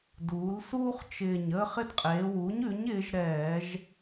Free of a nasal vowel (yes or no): yes